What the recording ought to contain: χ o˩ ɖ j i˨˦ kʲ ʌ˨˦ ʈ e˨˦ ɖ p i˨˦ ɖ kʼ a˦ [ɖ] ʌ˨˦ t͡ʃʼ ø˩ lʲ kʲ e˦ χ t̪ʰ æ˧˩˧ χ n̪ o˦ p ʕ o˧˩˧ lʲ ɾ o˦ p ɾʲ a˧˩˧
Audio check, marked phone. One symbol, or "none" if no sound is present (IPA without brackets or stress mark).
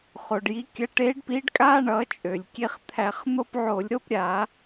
ɳ